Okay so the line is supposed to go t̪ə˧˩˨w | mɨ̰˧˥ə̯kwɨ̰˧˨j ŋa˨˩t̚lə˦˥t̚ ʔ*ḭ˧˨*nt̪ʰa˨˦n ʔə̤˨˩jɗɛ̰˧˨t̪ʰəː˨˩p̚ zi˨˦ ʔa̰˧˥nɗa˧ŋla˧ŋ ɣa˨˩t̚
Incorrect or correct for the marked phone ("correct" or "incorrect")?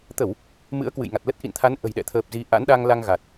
correct